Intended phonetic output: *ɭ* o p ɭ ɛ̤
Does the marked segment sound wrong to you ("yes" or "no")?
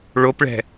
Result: no